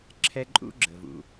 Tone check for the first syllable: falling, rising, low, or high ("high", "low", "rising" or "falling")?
high